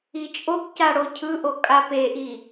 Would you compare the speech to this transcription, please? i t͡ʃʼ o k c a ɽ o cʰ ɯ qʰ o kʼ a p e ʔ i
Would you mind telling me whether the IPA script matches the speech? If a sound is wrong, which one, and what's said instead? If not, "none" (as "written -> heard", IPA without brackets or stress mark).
qʰ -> ʔ